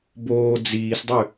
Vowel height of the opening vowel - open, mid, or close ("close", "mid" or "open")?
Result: mid